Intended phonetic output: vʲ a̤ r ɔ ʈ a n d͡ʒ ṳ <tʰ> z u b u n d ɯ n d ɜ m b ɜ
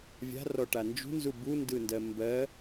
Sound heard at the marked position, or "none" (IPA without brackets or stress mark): n